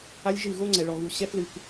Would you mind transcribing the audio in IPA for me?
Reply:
a˦ lʲ ʒ ɨ˦˨ ɣ o˦ ŋ͡ǀ ɛ˨ ɭ ɔ˨ ɣ u˨ ɕ ɛ˦ f l ɨ˨ k

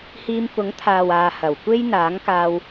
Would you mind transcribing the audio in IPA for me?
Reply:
h iː˧ m f ʊ˨˥ ŋ t̪ʰ aː˨ w aː˨ h ɐ˨˩ w kʷ e˥ j n̪ aː˨˥ ŋ k aː˧ w

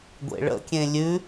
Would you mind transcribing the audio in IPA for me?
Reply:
ɡʷ ḛ ɭ ə̰ kʲ ẽ lʲ ʉ

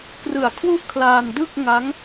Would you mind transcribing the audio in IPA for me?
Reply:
k r ɯ˨˩ a̯ kʰ w u˥˩ ʔ kʰ l aː˧ n d ɯ˥˩ k̚ ŋ a˦˥ ŋ

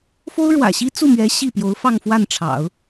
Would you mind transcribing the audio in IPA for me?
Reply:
f o˥ ʊ̯ ɻ w ä̰˨˩ ɕ i˥ t͡s u˥˩ m ɥ ɛ˧˥ ɕ i˥˩ p j o˧˥ ʊ̯ f ɑ˥˧ ŋ f w a˥˩ n ʈ͡ʂʰ ɑ̰˨˩˦ ʊ̯

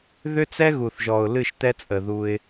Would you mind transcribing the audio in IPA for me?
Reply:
ð ʏ˦ t͡s ɛ˦ ɣ u˨ θ ʒ ɔ˨ ʊ̯ l ɨ˦˨ ʃ t̪ ɛ˦ t͡sʼ ə˨ ð u˦ ɪ̯

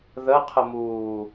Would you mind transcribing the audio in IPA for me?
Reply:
ð ə qʰ ə m uː

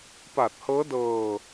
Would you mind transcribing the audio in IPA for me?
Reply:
p a˨˩ t̚ h ɤː˦˥ d ɤː˧

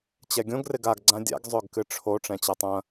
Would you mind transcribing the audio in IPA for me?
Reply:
t͡ɕ ɛ ɡʲ õ ɡ r ɪ ɡ a ɡ ɡ͡ǀ ã dʲ a̰ ɡ zˤ ø ɡ k ɨ ʈ͡ʂʰ o ʈ͡ʂ ɛ̃ t͡ɕ ɛ tˤ ɐ̃

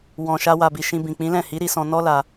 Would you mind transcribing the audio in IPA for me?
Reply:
w ɔ̃˨ ʃ a˧ w a˨ b i˨ ʃ ĩ˧ b ĩ˨ k͡p ĩ˨˦ l ɛ̃˦˨ h i˨˦ ɾ i˧ s ɔ̃˧ n ɔ˦ l a˧

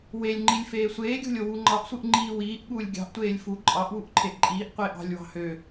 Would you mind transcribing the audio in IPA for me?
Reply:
w e lʲ ŋ͡ǃ i lʲ f eː sʷ eː ɡʲ o̤ lʲ o w u ŋ͡ǃ ɑ ʔ sʷ ɯ ʔ ŋ͡ǃ iː w iː ʔ ɠ uː lʲ ɡʲ ɑ̤ ʔ tʷ eː lʲ f u ǃʼ ɑ ʔ w u ʔ ǃʰ e ʔ ǃʼ iː ʔ qʷ eː ʔ ɑ̤ lʲ w ɑ̤ h ø

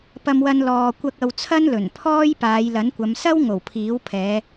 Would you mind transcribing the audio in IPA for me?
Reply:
p ɐ˧ m w ɐ˧ n l ɔː˨ kʷ ɐ˧ k̚ ɐ˧ w t͡sʰ ɐ˥ n l ɵ˨˩ n pʰ ɔː˥ j p aː˨˧ j l ɐ˨˥ n kʷ ɐ˨˧ m s ɐ˥ w ŋ o˨˩ w pʰ iː˨˥ w pʰ ɛː˨˧

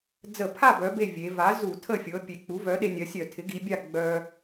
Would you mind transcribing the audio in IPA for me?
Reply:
d͡z ə˧˩˧ pʰ a˥˨ b œ˩˧ b e˥˨ vʲ e˩˧ v a˩˥ z u˧˩˧ tʰ ə˥˨ fʲ ɤ˩˧ pʲ e˩˧ k͡p u˩˥ v œ˩˥ ɗ e˧ nʲ ɜ˩˧ sʲ œ˧˩˧ tʰ ɪ˩˥ ɡ i˩˧ bʲ a˥˨ ɡ͡b œ˧

